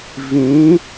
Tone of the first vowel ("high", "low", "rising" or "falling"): rising